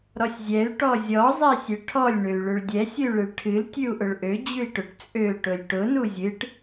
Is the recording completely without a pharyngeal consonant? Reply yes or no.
yes